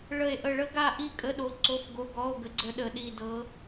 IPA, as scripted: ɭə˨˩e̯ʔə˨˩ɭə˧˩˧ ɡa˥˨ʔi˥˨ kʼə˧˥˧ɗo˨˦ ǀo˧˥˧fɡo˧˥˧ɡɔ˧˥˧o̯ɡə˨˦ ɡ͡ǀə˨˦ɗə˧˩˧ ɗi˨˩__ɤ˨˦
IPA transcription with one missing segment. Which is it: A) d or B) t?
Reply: A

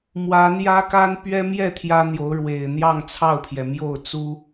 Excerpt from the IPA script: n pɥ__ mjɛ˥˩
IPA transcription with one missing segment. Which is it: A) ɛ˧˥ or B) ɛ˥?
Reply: B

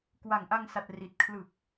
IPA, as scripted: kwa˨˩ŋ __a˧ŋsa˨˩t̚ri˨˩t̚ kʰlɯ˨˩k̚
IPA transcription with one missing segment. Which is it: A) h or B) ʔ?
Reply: B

